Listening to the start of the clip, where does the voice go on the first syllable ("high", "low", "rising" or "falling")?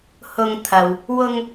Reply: low